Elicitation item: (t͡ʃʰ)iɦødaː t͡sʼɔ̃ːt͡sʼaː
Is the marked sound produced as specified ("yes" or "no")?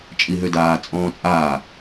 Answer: no